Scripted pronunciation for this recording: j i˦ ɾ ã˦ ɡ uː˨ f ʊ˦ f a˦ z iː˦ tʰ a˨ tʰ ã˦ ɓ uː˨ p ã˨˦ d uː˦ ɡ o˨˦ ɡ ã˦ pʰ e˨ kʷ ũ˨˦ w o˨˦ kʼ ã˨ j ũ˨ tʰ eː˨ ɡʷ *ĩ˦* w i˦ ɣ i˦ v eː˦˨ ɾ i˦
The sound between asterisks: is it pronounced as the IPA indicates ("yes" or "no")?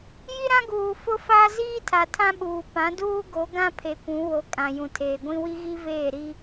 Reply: yes